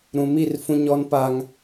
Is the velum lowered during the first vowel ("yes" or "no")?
yes